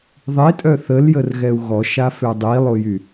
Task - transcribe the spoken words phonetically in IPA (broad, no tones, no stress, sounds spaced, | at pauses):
ðˤ i tʼ œ θ ə l j ə r ɣ ɛ u̯ ɣ ɔ ʃ a f ø dˤ i lˠ o j y